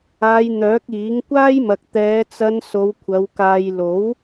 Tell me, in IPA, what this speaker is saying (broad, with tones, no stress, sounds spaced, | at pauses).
aː˧ j n̪ œː˨˥ k̚ iː˨˥ ŋ kʷ aː˥ j m ɐ˨ k̚ t̪ ɛː˨˧ t͡s ɐ˧ n s o˨˧ w kʷʰ ɐ˨˧ w k aː˨ j l o˨˥ w